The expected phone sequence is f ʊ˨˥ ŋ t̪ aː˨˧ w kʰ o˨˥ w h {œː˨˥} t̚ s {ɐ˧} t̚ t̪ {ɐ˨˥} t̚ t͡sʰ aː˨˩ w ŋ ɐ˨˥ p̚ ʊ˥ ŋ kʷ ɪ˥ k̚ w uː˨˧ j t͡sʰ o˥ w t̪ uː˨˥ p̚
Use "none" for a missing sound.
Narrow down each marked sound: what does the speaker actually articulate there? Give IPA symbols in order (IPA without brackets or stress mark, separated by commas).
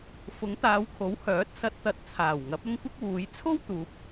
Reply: œː˨˥, ɐ˧, ɐ˨˥